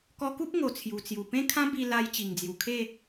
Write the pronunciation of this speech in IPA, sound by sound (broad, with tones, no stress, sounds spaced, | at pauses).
k ɔ˧ k u˦ p̚ ŋ o˨˩ t͡sʰ j u˨˩ t͡s j u˨˩ p ẽ˦ kʰ ã˦ b i˧ l a˧ j t͡ɕ i˨˩ ŋ d͡z j u˨˩ kʰ e˥˧